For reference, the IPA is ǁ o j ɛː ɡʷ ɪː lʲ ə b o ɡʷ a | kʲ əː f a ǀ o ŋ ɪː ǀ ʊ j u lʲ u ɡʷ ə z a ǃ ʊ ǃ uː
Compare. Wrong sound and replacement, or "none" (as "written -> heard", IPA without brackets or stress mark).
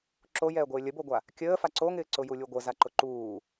none